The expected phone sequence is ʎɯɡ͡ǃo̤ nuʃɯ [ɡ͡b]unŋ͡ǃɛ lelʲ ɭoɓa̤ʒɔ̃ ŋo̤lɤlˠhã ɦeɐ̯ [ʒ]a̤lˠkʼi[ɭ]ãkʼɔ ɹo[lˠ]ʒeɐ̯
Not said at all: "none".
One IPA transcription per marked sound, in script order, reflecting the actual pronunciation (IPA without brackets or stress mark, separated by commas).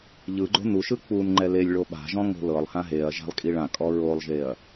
k͡p, ʒ, ɭ, lˠ